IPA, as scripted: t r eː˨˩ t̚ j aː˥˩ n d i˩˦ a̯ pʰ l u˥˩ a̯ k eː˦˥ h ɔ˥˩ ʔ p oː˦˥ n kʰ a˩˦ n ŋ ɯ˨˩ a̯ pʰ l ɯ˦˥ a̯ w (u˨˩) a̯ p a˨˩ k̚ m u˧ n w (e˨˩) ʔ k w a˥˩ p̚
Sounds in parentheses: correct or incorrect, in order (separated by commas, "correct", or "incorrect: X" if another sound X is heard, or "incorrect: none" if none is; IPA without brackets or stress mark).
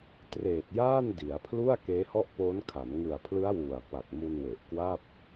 correct, correct